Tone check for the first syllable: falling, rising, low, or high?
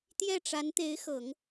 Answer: falling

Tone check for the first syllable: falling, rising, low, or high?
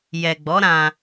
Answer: low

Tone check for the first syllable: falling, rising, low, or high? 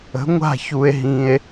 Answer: rising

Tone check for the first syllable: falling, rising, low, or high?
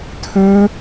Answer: high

